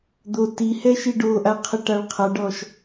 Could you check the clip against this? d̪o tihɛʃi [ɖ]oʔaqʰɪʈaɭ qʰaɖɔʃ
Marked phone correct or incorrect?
correct